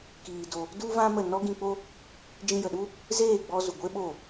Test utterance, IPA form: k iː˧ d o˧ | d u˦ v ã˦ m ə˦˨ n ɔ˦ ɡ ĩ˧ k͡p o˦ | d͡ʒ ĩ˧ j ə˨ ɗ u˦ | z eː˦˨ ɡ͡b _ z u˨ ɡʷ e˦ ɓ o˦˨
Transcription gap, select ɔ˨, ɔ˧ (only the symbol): ɔ˧